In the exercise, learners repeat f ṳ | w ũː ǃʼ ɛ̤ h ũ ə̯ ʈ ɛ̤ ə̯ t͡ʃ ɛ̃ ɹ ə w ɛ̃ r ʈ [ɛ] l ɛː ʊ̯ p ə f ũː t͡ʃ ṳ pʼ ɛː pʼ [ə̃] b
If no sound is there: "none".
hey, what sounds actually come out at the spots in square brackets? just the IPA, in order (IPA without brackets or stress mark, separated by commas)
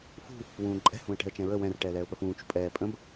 ɛː, ə̃